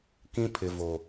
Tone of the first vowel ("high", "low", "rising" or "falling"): high